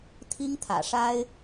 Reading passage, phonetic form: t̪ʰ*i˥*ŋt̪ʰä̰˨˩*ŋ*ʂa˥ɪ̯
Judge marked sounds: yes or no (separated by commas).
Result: yes, no